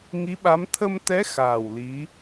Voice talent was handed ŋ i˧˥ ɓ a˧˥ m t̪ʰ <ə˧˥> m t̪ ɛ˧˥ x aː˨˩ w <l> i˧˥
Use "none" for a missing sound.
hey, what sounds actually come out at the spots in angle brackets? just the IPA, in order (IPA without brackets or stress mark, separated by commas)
ə˧, l